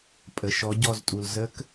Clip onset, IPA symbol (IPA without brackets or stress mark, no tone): pʼ